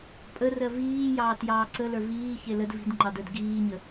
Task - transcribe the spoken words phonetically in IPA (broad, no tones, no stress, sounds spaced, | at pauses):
pʼ ə r ɜ v iː j ɑː t j ɑː ǀ ə l ə˞ v iː ç e l ə d v i̤ d ŋ͡ǃ ɑ d ə˞ d ɡ iː ɲ ə